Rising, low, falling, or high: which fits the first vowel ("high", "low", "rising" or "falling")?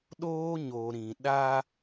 high